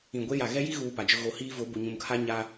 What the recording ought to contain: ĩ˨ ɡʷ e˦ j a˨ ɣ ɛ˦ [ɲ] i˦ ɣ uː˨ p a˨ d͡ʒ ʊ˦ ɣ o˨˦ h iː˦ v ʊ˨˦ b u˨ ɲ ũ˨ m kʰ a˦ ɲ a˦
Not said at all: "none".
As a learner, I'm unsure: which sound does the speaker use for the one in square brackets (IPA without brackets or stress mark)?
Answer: j